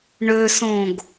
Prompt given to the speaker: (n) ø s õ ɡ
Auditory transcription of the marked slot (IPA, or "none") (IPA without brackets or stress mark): ɳ